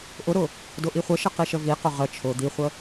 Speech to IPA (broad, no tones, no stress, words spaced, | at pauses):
ʔʊɾʊ | dʊʔiχʷəʃə qiʃəviqʊ ʁə t͡ʃʰʊ d̪iχʷə